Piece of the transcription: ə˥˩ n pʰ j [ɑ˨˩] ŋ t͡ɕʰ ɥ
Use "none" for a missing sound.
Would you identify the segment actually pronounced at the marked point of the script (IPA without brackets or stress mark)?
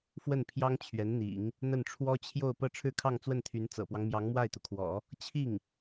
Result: ɑ˥